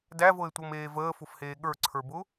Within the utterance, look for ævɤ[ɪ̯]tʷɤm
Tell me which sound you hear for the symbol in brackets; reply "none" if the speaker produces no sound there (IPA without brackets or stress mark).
ɪ̯